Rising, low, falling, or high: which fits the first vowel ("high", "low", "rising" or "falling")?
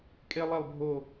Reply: high